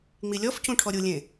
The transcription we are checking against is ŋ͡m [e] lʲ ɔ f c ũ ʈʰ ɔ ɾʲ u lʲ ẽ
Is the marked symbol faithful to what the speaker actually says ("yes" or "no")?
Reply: no